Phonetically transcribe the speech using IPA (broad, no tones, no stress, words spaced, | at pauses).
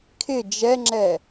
kʰɪ d͡ʒɛŋ͡ǁɛ